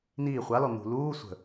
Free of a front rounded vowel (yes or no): yes